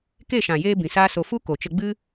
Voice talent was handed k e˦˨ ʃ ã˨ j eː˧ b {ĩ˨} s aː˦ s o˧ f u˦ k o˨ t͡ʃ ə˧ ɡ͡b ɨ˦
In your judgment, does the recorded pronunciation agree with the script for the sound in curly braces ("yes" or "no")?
yes